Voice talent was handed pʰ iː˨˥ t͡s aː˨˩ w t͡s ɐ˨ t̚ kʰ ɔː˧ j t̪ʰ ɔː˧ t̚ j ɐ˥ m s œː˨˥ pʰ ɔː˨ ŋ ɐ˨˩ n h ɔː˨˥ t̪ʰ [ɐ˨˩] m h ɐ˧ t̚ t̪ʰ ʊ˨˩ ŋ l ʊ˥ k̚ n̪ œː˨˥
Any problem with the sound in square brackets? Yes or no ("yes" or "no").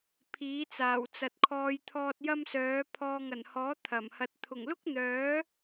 no